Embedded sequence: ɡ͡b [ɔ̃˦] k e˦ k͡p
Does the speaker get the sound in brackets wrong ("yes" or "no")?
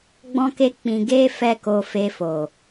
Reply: no